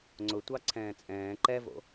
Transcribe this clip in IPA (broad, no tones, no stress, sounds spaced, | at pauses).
ŋ͡ǀ ʊ tʷ ɑ ǀʰ ɛ̃ː t͡sʼ ɛ̃ː ǃ ɛ v o̰